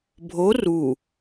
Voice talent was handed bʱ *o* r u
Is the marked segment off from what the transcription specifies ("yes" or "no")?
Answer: no